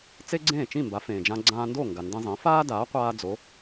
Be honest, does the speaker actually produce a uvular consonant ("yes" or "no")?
yes